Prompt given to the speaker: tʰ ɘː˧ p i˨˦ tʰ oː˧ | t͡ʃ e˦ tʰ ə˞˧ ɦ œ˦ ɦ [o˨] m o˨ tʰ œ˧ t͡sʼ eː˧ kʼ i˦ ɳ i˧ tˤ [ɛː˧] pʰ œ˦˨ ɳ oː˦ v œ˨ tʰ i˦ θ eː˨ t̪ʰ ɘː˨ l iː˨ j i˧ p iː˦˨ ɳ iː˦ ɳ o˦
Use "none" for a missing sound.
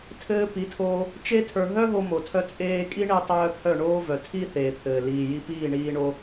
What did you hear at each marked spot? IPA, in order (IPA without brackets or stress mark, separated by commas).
o˧, œː˧